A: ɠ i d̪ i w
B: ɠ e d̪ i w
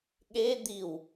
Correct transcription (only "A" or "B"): B